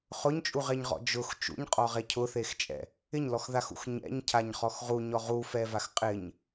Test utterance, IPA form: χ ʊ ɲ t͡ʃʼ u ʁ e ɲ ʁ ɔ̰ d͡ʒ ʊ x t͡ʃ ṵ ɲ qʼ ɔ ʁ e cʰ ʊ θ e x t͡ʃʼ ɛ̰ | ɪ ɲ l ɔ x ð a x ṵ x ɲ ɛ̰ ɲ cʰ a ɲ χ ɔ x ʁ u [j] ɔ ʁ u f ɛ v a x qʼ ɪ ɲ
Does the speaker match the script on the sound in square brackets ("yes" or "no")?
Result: no